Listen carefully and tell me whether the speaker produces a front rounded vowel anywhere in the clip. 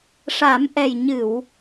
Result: no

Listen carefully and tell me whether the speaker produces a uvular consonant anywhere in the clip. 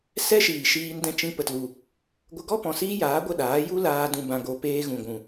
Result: no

